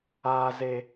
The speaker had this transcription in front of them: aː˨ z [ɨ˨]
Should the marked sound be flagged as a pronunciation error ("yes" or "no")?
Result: yes